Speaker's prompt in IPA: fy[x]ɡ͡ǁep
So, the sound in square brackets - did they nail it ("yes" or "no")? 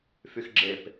yes